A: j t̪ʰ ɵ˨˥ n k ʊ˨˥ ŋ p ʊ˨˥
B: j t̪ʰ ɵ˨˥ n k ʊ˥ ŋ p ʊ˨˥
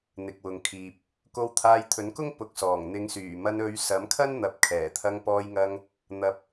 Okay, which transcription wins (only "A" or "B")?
B